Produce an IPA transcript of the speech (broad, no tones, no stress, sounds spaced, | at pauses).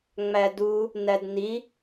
ŋ͡m æ d u | n æ d n i